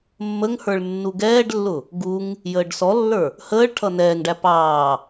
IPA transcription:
mː ə ŋ h ə˞ ɭ nː u ɡ ɛː ɖ lː ʊ | ɡ u ŋ | j əː ɖ s ɔ lː ə˞ | h əː ɭ ʈʰ ʌ n ɛː ŋ ɖ æ p ɑː

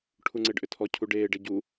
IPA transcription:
ʈʰ u ŋ͡ǀ e ɖ ʔ ʏ tʰ ɔ cʰ u ɖ eː ɖ e ɟ u

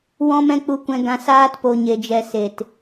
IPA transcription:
w ɔ̃˦ m ɛ̃˦ k͡p u˧ kʷ ɛ̃˧ ɡ ã˧ s aː˦ t p o˧ ɲ e˧ d͡ʒ ɛ˧ s e˨ t

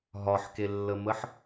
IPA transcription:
ɦ ɒ ħ k e lː ə m ə ħ

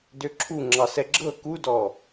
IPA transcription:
d ø ǁʰ u ŋ͡ǁ ɑ s ɛ ɡ͡ǁ ɤ k u d ɔ

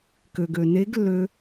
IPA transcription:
k ø˩ ɡ ø˩ n e˧˥ ɡ lː ø˧

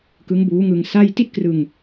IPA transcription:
k ɯ˦˥ ŋ b uː˦˥ ŋ ɯ˧ ŋ s a˥˩ j t i˥˩ t̚ k r ɯ˧ ŋ

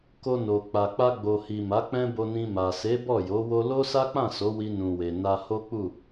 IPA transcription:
k o˧ n o˨ k͡p a˨ k͡p a˧ ɡ͡b o˨ h i˨ m a˨˦ k͡p ɛ̃˦ b o˧ n ĩ˧ m a˨ s e˨˦ b ɔ˦˨ j o˨˦ w o˦ l o˦ s a˦ k͡p ã˦˨ s o˨˦ w i˧ n ũ˨ w e˨ n a˧ h o˦ k͡p u˦˨

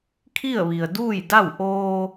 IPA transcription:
kʰ i˥˨ ə̯ ʋ i˩ ə̯ d uː˥˨ j d a˥˨ w ʔ oː˧

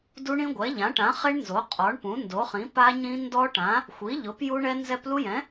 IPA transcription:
d u˦˥ ɳ ĩ˦˥ ɡʷ ɛ˩˥ ʎ ã˩˥ ʈ ã˩˥ χ e˦˥ ɳ n z o˩˥ qʼ ɔ˩˥ ɳ p ũ˩˥ n d o˩˥ χ ĩ˩˥ p a˦˥ ɲ ĩ˦˥ n d ɔ˦˥ ʈ ã˩˥ | xʷ i˩˥ ʎ ʊ˩˥ p j u˦˥ ɳ ɛ˦˥ n z ɛ˦˥ p l u˦˥ j ɛ̃˩˥

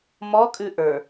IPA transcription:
m ɔ kʼ ʉ ʔ ə˞

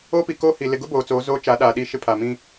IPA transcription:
o˦ p i˨ k oː˦ h i˨ l ɪ˨ ɡ ʊ˦ b oː˨ t͡s oː˨˦ z oː˦ t͡ʃ a˨˦ ɗ a˨ ɗ i˦˨ ʃ ɪ˦ pʰ a˨ m ĩ˦

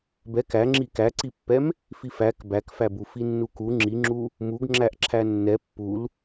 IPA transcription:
b ɛ k æ ŋ͡ǁ i k æ ǀ i pː ɛ m | f i f æ k b æ k f æ b u f i nː u k u ŋ͡ǁ i ŋ͡ǁ u | m u ɡ ŋ͡ǁ æ ʔ ǁʰ æ nː ɛ pː u l

